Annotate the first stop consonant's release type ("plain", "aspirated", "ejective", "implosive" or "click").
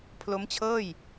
aspirated